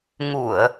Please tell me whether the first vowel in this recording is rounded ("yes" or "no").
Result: yes